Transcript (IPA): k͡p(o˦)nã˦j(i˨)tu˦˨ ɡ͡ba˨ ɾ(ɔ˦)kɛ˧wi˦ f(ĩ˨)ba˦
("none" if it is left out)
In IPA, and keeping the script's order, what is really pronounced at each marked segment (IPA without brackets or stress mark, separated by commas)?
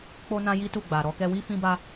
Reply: o˦, i˦, ɔ˧, ĩ˦